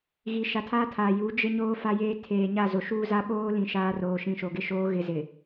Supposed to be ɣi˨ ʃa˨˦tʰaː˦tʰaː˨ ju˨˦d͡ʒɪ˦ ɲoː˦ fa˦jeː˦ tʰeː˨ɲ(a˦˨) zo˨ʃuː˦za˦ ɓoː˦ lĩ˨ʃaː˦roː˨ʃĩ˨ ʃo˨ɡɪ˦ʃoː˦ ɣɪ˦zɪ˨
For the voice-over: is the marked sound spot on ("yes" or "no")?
yes